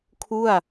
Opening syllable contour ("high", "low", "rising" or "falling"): falling